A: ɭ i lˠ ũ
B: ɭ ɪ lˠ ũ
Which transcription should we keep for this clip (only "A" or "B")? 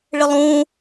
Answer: B